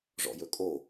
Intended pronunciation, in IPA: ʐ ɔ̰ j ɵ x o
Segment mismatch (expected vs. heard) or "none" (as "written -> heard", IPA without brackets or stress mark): x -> kʼ